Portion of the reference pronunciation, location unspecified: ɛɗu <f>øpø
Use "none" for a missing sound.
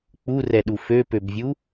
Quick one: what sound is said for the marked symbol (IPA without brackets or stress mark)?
f